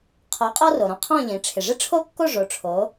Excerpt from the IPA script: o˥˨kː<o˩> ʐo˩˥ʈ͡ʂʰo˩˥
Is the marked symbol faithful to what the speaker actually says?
no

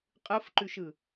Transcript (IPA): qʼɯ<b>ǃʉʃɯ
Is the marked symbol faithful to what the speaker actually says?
no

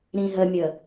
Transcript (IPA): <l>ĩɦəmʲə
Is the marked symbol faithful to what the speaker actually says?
no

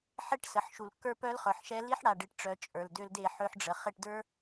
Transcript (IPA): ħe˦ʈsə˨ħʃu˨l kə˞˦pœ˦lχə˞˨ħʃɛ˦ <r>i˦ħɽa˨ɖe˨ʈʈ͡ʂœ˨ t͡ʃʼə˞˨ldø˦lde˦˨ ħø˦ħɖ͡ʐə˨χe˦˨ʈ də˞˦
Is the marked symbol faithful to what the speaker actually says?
no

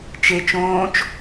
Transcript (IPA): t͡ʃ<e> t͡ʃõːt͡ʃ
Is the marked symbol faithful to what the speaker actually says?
yes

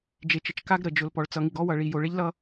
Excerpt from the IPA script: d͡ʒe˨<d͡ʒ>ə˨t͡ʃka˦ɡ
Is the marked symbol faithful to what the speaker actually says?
no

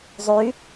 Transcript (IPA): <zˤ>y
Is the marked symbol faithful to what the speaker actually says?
yes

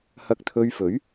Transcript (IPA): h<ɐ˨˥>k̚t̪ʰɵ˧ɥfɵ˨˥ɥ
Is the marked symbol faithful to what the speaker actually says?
no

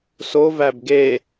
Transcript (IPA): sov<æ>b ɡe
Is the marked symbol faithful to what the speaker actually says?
yes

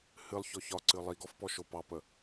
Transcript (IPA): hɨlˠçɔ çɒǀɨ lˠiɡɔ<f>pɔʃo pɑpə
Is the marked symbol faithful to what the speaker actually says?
yes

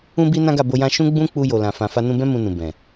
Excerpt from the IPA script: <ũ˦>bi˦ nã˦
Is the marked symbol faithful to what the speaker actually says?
yes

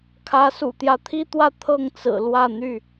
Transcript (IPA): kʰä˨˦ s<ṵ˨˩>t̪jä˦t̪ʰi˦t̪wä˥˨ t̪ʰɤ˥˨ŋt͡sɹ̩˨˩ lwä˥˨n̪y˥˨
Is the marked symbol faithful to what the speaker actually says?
yes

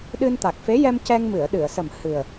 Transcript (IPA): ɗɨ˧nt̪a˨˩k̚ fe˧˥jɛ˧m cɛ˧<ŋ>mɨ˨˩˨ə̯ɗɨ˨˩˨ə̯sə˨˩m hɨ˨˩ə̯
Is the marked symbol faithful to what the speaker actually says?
yes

